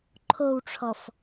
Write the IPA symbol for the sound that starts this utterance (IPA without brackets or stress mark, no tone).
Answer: ǃʰ